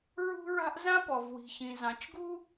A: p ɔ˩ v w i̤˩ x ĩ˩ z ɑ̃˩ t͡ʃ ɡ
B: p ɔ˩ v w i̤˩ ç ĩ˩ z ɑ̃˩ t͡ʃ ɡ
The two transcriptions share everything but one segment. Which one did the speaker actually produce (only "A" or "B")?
B